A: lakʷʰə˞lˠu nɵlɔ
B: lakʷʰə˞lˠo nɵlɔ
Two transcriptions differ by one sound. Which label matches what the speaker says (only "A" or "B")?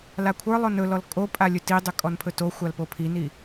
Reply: B